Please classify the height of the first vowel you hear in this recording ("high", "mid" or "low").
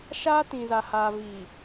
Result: low